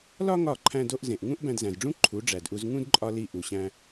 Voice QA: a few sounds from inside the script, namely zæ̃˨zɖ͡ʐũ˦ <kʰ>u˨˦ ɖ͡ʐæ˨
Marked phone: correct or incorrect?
incorrect